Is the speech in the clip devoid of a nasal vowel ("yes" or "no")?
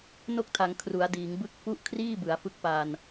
yes